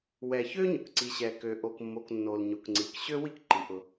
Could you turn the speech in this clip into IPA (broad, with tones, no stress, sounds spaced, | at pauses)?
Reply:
w ɛ˩ ç ø˥ ɲ ʊ˩ k ǀ i˩ ɕ ɛ˩ k ø˩ ʔ o˩ k mː o˩ k nː o˩ l ɲ o˩ k ŋ͡ǀ i˩ k ɕ ø˥ w i˥ k ǃ i˩ ʔ ʊ˩